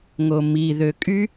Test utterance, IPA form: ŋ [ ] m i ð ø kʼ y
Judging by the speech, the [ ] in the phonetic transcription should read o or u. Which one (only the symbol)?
o